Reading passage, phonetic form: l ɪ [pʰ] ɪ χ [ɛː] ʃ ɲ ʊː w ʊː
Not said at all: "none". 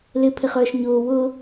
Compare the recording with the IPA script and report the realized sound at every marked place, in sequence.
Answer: pʰ, œː

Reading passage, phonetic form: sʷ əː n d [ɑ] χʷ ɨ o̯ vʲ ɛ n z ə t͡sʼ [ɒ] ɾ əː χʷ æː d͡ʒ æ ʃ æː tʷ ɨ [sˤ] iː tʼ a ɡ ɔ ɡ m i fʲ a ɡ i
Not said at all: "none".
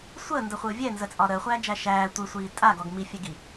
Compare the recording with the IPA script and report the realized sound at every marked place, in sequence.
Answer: ə, ɒ, sʷ

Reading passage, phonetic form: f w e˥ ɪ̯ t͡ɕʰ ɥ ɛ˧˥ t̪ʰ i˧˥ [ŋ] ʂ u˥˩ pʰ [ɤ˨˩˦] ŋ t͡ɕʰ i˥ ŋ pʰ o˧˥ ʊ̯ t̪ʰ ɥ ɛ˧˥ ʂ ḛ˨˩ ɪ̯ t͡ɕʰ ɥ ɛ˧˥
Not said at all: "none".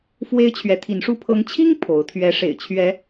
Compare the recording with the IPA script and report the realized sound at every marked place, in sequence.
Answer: n, ɤ˧˥

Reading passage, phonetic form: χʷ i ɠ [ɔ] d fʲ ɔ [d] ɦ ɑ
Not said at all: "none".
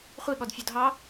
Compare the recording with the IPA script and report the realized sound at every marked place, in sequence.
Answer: ɔ, d

